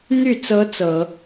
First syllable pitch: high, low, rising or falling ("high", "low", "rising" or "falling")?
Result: falling